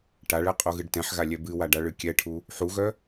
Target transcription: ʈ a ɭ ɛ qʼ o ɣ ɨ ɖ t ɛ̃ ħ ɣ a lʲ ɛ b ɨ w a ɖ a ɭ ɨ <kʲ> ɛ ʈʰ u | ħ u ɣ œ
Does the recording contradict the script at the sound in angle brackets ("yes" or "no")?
no